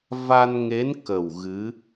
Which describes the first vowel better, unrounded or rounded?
unrounded